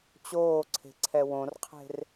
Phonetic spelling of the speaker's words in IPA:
t͡ɕoːǀʰe̤ǀʰɛ wõrqʰe̤r

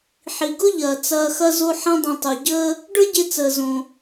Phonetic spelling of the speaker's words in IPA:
ħi˩ɡʊ˥ʎɐː˩ t͡sɐː˧xɐ˥zo˥ ħɐ̃˥dˤɐ̃˧tˤu˩ɟəː˥ | ɖə˞˥ɟe˧ t͡səː˩ zõ˩

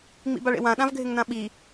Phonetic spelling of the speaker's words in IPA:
ŋ͡mḭbaɭḛwã ɗãvɡʱɪŋnãɓi

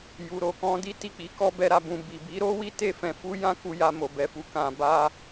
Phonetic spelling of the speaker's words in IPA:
ju˨ɾo˨kɔ̃˧di˦ ti˦˨k͡pi˨˦kɔ˦ bɛ˧ɾa˧bũ˧ bi˨ bi˨˦ɾo˦wi˦ te˦˨fɛ̃˧fu˦ jã˦ ku˧ja˧mo˨ bɛ˧fu˧ kã˧ba˦

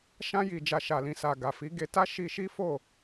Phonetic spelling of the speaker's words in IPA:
ʃã˧ji˨ d͡ʒa˨ʃa˨lĩ˨ sa˨ ɡa˨fi˨˦ɡe˧ ta˦ʃi˧ʃi˦ fo˦˨

